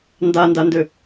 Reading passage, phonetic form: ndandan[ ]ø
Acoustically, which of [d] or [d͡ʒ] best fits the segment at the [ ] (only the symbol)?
d